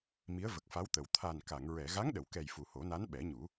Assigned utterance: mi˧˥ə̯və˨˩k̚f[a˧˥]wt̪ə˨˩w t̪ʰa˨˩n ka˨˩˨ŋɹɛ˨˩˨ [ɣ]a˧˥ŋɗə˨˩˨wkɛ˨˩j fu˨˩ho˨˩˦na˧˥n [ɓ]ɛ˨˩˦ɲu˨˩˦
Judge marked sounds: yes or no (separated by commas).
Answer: yes, yes, yes